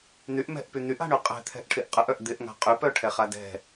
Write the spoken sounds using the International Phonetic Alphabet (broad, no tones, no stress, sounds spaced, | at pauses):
n̪ y ʔ m ɛ̤ ʔ p y n̪ y ʔ a̤ ɳ y qʼ ɛ̤ t̪ʰ ɛ̤ ʔ ʈʰ ɪ ʔ qʼ ə ʔ œ ʔ d̪ ɪ ʔ ŋ a̤ qʼ y p œ ʈʰ ɛ χ a d ɛ̤